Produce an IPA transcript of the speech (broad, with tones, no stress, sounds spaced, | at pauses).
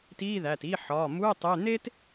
t iː˧˥˧ ð æ˩˧˩ t i˧˥˧ ħ ɒː˩˧˩ m u˧˥˧ e̯ tˤ e˧˥˧ n̪ eː˥ t